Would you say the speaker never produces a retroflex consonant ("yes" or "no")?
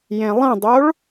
no